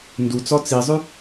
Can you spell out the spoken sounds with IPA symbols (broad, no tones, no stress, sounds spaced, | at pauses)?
n d u t͡s ɔ t͡s i zˤ ʉ